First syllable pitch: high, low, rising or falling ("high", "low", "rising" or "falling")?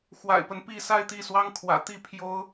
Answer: low